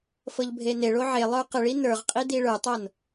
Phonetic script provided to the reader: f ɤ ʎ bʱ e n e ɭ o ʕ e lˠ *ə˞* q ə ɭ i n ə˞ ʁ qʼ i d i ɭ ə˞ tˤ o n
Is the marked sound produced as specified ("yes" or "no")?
yes